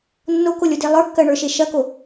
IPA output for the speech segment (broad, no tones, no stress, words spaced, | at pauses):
nːokolʲode lˠə˞kːɜɳə˞ʃe ʃɐko